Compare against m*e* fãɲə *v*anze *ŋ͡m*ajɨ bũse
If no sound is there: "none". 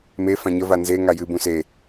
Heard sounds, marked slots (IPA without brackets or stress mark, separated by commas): e, v, ŋ